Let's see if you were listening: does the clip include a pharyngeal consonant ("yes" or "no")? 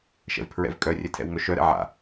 yes